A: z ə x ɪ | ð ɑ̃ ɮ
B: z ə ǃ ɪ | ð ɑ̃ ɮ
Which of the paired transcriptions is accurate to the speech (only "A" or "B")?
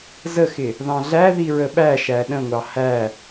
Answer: A